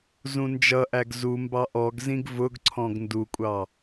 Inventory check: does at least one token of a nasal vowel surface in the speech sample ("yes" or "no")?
yes